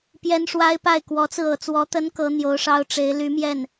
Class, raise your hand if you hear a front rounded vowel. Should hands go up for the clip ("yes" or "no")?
yes